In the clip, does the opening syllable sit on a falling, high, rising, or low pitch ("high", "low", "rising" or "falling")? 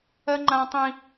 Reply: high